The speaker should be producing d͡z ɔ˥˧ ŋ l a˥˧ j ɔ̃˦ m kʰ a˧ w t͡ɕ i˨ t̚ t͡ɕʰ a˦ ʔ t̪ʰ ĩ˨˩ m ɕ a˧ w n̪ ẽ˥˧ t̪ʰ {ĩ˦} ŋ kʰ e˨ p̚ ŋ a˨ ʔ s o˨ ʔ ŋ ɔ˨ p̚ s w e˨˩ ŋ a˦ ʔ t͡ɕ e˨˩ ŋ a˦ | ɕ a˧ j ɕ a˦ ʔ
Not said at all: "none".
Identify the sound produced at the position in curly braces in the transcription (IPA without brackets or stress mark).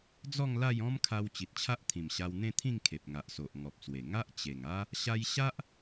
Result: ĩ˥˧